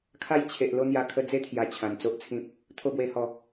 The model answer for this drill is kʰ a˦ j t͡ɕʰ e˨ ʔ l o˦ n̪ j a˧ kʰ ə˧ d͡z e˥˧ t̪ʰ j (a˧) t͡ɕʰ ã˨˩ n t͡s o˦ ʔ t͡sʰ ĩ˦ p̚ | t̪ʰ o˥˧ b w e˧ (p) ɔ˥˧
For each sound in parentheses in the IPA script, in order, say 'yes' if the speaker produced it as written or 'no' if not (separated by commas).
no, no